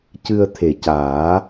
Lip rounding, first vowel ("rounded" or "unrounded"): unrounded